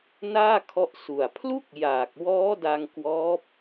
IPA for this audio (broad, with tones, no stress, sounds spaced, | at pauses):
n aː˥˩ kʰ ɔ˦˥ ʔ s u˨˩ a̯ pʰ l u˥˩ k̚ j aː˨˩ k̚ w ɔː˦˥ d a˧ ŋ k w ɔː˦˥ p̚